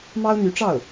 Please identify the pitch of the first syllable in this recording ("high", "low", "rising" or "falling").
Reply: high